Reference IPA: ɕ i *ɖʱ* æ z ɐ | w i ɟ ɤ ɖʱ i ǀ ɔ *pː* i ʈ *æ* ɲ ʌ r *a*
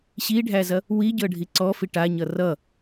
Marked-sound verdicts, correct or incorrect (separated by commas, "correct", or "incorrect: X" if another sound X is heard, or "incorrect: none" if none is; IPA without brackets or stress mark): correct, incorrect: f, incorrect: a, incorrect: ʌ